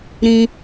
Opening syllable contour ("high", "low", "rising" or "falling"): high